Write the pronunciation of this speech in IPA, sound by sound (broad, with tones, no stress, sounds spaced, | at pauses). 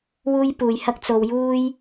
w uː˥ j p uː˨ j h ɐ˥ k̚ t͡s o˧ w j uː˥ j